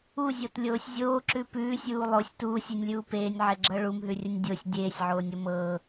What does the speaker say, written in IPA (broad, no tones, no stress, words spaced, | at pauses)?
uzʲɤtlʲoːsʲ zʲoːǁʉ pʉːsʲuː lˠosʲ tuːsʲinʲlʲuː peːnʲʕɛɡ͡ǁɤ ɭumɦʉrʲənʲ dʲosʲ dʲeːsʲʕoːnʲo mɤ